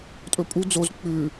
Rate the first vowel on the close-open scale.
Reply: mid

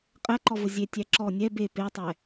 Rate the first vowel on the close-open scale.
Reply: open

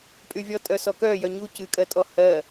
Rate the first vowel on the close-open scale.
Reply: close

